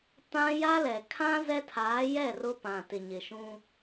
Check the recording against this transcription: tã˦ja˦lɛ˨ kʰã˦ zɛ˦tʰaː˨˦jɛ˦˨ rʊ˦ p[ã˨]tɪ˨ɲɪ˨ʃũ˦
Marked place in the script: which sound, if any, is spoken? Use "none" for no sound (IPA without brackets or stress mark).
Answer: ã˨